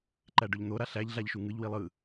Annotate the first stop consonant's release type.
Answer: click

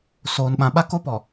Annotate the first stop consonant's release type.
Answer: implosive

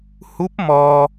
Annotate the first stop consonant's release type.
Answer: plain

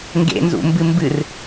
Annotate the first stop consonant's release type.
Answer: plain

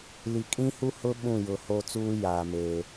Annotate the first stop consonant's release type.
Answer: ejective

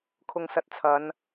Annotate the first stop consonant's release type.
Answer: aspirated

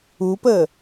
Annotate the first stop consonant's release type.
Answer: plain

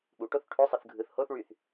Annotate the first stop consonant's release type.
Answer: implosive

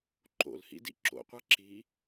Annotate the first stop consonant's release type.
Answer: click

